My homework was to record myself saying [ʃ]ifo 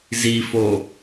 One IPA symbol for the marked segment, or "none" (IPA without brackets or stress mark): z